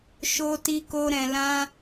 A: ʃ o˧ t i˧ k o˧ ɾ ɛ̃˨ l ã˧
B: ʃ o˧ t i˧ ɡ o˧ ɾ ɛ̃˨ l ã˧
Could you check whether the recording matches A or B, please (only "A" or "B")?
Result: A